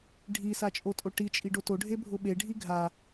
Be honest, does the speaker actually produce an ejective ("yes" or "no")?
yes